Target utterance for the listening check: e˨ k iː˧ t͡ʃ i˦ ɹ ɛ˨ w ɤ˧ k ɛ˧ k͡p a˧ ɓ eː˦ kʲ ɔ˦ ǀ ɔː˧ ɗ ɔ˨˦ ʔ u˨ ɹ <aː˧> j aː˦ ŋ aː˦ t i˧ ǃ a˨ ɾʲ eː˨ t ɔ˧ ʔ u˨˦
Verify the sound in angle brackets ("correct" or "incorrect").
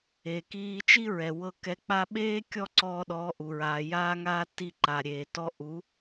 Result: incorrect